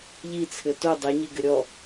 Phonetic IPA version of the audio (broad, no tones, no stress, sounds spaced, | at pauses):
ʎ i t͡sʰ ɘ t o dˤ e ɲ i ɡ ɘ ɾʲ ɔ